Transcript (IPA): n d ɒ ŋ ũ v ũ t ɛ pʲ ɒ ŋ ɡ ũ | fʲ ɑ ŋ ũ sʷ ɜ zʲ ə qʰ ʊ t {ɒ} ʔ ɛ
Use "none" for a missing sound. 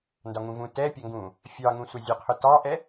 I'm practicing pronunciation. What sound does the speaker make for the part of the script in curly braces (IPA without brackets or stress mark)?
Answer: ɑ